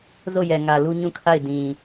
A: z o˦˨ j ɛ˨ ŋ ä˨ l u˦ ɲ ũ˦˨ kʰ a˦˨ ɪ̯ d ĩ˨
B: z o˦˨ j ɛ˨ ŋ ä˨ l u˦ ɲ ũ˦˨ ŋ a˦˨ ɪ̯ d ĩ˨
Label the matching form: A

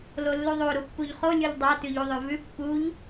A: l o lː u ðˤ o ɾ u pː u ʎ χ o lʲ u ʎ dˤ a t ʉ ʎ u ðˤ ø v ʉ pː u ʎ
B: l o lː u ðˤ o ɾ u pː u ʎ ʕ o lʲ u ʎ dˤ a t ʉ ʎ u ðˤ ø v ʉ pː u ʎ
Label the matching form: A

